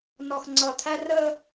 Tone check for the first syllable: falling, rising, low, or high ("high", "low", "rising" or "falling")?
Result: low